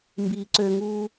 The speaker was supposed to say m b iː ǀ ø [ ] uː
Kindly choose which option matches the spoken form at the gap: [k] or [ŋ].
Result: ŋ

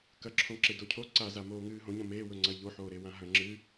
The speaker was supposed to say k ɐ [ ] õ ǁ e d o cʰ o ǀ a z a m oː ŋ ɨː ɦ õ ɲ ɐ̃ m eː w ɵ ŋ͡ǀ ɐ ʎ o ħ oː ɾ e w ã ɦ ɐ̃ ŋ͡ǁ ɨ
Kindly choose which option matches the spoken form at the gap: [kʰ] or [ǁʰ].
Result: ǁʰ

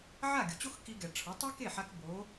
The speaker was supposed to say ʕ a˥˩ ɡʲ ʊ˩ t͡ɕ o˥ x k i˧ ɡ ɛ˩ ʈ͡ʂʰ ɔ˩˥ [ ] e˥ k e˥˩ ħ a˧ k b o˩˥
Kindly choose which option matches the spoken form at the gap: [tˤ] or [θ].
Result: tˤ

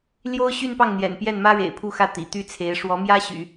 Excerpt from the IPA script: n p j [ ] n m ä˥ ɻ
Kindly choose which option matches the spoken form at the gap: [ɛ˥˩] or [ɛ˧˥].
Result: ɛ˥˩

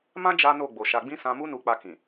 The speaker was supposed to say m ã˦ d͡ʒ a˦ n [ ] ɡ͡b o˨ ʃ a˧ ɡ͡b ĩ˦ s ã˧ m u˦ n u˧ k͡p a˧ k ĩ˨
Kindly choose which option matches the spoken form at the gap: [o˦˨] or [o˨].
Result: o˦˨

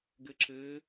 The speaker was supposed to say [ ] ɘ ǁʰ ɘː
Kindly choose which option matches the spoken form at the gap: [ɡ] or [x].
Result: ɡ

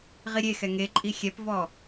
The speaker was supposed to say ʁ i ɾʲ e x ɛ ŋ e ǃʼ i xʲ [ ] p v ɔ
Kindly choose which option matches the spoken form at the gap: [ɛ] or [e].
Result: ɛ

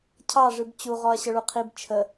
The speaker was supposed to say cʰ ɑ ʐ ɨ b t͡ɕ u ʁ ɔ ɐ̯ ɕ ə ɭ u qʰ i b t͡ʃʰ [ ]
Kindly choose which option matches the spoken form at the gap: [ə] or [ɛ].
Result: ə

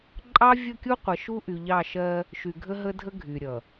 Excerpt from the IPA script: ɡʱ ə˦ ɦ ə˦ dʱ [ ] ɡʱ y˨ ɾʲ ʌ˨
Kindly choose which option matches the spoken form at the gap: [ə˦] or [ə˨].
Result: ə˦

